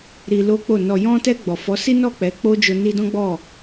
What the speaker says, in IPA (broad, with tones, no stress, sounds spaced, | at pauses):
ɾ i˧ l o˦ k͡p o˦˨ n ɔ˨ j ɔ̃˧ t ɛ˧ ɡ͡b ɔ˨ f ɔ˨˦ s i˦ n ɔ˦˨ k͡p ɛ˨˦ k͡p o˦ d͡ʒ o˧ n i˧ d ɔ̃˦ ɡ͡b ɔ˦˨